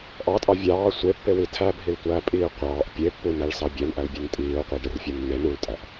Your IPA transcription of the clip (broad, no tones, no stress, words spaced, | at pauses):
ʔɑtʼɑ vʲɑː sʷepːewi tʰæbʱiltʷæːpʼiː qʷɑːʔ pʲepːunæɭsɑ bʲænʔælbʲæn tʼiːʊ̯qʷeɖerfʲu nːen ultʼæʔ